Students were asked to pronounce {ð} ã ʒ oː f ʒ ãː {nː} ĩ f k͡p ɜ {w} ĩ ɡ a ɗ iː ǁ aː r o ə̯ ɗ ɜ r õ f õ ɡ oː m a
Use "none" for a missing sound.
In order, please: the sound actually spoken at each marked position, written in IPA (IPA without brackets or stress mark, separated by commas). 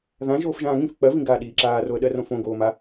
ð, ŋ, v